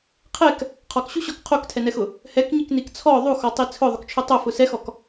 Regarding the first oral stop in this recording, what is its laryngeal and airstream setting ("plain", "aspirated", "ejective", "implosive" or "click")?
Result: aspirated